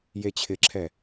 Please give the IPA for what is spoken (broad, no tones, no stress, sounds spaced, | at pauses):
j e t͡ɕʰ ɪ ǁʰ ɛ